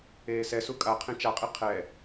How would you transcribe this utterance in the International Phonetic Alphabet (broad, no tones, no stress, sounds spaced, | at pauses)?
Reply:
eː s ɛ s u kʼ a qʰ ẽ t͡ʃ a qʼ i qʰ ɛ